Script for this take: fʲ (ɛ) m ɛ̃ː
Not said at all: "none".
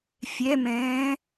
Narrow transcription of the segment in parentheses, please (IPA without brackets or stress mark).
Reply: ɛ